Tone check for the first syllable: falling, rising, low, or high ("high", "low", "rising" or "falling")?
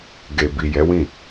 low